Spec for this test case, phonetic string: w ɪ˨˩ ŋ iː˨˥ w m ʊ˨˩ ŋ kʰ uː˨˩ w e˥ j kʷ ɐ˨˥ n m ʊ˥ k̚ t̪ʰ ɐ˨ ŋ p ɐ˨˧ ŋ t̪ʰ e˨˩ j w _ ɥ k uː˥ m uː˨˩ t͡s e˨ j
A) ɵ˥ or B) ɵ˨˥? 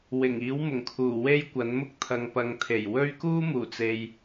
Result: A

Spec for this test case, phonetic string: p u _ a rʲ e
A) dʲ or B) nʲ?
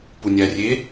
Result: B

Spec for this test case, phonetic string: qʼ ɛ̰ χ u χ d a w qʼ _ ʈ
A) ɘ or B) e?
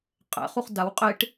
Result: B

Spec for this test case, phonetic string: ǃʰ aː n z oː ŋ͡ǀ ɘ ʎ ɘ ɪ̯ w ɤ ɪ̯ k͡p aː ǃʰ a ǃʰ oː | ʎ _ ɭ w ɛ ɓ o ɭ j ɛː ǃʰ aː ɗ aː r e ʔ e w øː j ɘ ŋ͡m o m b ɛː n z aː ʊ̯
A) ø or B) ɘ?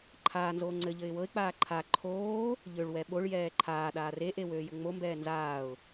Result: A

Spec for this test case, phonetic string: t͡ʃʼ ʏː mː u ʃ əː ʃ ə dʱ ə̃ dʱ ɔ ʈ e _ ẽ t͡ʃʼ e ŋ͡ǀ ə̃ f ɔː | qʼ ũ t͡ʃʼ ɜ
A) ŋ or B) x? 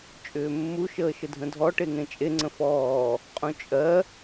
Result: A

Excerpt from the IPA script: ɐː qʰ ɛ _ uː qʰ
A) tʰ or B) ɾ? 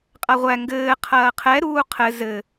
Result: B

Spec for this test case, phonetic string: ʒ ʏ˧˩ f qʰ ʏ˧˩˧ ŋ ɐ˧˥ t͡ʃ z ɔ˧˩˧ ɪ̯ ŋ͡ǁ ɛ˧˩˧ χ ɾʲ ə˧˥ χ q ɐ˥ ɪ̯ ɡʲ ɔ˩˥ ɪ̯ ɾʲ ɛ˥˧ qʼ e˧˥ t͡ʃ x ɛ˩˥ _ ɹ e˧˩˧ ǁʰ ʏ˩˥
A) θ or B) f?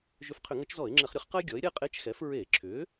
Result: B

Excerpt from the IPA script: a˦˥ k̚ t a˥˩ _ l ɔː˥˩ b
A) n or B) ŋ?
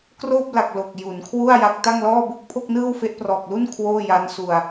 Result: B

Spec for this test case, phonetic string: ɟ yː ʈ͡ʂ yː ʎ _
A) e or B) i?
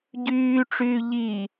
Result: B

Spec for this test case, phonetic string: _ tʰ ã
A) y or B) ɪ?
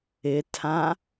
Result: B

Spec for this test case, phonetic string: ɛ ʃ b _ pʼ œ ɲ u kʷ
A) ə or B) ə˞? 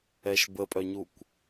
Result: A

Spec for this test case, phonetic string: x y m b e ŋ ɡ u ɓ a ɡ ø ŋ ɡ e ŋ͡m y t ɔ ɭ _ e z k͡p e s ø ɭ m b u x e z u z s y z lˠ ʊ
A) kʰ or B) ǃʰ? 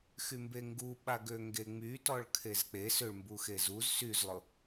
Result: A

